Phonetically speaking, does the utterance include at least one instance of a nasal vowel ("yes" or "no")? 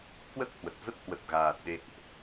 no